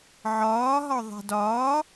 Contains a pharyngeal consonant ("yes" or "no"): yes